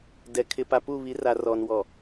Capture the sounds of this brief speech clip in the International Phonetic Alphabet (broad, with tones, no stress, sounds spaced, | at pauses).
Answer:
d ɛ˨ kʰ ɪ˨ p a˨ p u˦˨ β i˨˦ r a˨ r ɔ˨ n w ɔ˨